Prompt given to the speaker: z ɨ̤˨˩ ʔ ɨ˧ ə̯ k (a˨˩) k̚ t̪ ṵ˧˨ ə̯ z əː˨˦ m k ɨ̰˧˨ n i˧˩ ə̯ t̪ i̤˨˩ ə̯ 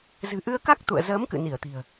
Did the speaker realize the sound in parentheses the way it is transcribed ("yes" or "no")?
no